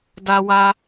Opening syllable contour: high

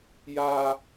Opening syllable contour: high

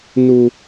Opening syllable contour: high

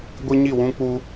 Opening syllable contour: high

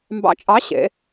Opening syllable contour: rising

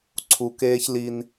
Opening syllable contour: low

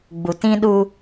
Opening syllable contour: low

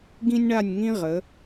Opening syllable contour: high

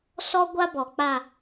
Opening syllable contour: high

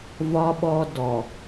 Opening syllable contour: high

